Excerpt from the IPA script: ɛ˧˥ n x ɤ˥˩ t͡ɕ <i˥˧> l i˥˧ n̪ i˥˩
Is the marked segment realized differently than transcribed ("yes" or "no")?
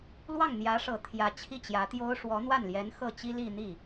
yes